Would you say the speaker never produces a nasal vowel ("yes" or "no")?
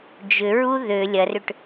yes